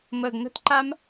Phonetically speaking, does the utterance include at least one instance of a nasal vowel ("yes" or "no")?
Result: no